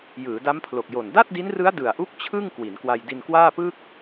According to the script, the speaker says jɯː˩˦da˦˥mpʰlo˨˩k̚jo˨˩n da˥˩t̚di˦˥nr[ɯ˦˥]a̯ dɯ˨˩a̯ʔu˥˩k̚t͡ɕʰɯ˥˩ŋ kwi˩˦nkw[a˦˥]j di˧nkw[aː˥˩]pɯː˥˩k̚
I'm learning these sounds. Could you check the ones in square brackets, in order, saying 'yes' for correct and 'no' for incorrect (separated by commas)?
yes, no, yes